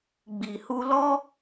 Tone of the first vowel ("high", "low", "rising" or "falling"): low